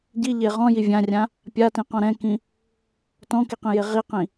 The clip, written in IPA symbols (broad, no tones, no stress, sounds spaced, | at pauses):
ɟ i ʎ e ʁ ɔ̃ j i vʲ ã rʲ ã | pʲ a t ĩ q ɔ̃ ɾ ɛ̃ k ĩ | t ɔ̃ k i q ĩ j e ʁ i q ĩ